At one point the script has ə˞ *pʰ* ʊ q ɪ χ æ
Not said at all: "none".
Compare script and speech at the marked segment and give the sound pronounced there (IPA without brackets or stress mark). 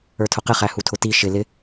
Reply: tʰ